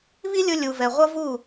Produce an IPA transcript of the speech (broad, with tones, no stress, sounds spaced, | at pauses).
β i˦ lʲ ʊ˧ lʲ u˨ v ɛ˨ ʁʷ ʌ˦ v u˦˨